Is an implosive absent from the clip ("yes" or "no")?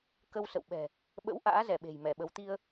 no